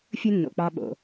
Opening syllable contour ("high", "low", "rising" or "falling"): high